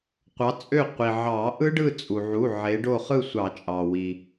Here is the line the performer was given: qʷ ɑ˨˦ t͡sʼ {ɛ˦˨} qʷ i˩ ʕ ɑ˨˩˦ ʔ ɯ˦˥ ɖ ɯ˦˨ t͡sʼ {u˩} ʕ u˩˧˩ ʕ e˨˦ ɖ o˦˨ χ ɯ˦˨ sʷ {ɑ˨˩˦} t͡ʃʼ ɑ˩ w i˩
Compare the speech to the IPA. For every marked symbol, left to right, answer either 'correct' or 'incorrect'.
incorrect, correct, correct

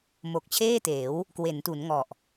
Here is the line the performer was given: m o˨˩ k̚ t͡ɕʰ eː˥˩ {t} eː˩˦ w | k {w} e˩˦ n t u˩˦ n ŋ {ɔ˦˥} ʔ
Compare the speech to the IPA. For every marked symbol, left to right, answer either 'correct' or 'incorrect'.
correct, correct, incorrect

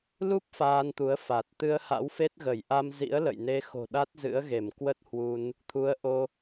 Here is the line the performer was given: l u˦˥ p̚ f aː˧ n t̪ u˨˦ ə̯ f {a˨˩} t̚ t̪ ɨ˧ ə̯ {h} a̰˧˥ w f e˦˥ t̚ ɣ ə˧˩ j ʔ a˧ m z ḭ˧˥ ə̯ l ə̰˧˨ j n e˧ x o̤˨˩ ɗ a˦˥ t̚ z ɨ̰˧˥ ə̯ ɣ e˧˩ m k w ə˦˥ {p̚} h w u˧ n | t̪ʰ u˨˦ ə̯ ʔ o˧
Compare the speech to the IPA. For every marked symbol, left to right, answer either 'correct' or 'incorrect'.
correct, correct, incorrect

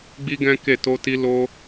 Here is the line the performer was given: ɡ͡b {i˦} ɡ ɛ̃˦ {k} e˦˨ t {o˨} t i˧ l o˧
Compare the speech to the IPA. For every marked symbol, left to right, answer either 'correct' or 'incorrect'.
correct, correct, incorrect

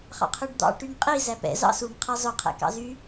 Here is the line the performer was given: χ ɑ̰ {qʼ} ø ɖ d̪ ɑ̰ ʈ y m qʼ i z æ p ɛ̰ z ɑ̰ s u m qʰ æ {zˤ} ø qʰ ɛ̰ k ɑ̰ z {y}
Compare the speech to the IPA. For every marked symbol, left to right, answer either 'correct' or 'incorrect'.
incorrect, correct, correct

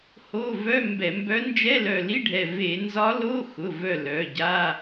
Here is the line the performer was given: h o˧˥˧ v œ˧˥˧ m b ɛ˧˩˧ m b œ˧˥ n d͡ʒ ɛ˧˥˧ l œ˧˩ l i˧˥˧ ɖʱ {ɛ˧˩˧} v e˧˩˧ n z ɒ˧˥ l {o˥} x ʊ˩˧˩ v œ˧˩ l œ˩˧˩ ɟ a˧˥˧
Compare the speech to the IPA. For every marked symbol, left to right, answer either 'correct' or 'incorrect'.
incorrect, incorrect

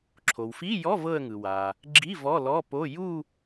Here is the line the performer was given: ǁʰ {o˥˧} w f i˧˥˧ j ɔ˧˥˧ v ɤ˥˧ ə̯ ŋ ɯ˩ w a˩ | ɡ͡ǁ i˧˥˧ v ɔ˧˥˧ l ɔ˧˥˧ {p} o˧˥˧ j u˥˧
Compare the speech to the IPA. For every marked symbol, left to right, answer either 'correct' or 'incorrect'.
incorrect, correct

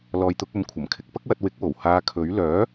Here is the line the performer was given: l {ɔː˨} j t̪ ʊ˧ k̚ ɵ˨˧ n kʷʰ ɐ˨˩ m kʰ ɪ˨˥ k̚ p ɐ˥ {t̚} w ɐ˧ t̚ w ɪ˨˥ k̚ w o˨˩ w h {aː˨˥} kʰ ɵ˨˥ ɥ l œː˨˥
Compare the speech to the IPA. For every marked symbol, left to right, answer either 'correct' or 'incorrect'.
correct, incorrect, incorrect

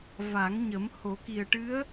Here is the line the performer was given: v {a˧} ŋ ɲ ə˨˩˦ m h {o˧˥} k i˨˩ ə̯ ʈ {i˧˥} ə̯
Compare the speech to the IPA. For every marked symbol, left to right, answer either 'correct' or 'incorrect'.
incorrect, incorrect, incorrect

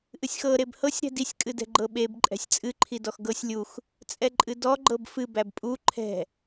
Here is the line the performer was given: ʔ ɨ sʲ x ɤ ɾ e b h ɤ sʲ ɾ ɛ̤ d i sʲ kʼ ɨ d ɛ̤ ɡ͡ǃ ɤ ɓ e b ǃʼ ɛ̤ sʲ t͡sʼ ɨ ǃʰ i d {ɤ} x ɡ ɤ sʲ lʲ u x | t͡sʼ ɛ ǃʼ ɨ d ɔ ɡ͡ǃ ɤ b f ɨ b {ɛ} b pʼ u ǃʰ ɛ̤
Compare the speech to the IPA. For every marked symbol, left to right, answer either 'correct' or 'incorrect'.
incorrect, incorrect

